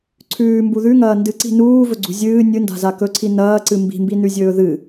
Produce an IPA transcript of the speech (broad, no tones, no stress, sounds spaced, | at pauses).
ǀʰ ʉː m b u ð ʉ ŋ ɐː n d ɨ ǀ i̤ n uː v ɵ ɡ͡ǀ ṳ zʲ ɨː nʲ ɨ n d a̤ z a k ɵ ǀʰ i n ɐː ǀ ɨ m b i̤ m b i n ʉ zʲ ɵː ð ɨ